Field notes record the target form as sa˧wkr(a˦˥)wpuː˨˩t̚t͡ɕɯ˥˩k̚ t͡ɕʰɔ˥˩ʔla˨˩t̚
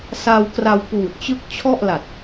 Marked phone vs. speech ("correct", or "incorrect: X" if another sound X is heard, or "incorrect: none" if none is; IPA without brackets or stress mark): incorrect: a˧